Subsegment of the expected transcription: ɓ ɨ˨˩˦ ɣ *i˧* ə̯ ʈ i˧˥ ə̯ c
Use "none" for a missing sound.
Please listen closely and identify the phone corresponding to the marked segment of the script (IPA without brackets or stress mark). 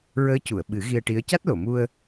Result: i˧